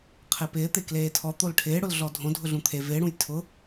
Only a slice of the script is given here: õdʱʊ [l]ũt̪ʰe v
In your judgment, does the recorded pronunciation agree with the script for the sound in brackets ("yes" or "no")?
no